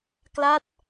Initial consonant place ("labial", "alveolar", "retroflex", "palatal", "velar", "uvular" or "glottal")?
velar